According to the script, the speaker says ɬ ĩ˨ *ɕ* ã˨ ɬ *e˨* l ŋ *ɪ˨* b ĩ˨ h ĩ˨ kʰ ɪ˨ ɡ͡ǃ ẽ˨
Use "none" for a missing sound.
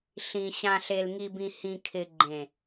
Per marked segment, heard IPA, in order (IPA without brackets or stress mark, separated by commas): ɕ, e˨, i˨